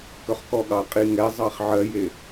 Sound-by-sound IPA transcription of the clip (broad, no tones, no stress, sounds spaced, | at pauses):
k œ χ k ɔ ɠ ɑ qʼ i ŋ ɛ zˤ ɑ χ ʕ ɜ j e